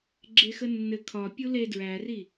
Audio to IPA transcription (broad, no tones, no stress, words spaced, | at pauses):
ɡ͡ǁexənːɘ kʰɒ pʲule dɹæri